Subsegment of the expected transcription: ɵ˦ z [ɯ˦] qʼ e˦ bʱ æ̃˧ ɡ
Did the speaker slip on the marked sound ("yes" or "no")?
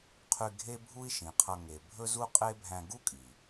yes